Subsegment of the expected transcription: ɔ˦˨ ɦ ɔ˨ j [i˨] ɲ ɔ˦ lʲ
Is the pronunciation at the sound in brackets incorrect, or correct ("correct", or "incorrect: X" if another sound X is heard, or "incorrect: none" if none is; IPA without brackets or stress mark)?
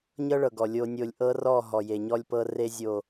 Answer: incorrect: e˨